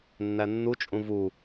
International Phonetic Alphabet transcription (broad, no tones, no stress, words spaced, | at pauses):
nːænːut͡ʃʼũ vu